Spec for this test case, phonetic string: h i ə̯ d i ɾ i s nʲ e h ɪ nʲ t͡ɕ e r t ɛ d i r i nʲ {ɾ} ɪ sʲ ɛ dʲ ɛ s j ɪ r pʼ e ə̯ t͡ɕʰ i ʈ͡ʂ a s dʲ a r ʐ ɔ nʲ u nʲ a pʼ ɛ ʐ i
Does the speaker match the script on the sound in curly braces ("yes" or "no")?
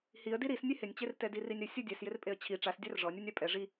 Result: yes